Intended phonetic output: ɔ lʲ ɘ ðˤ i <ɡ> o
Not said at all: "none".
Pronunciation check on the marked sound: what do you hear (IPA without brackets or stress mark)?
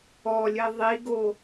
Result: ɡ